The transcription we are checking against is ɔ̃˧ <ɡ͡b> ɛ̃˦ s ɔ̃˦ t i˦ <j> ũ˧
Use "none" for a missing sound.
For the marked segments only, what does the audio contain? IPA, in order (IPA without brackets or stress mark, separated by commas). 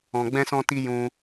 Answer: ɡ͡b, j